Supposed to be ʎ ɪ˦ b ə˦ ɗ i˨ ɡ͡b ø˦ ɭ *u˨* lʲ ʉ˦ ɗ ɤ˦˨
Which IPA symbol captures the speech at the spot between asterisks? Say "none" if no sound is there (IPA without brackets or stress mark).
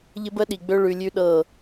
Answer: ʉ˨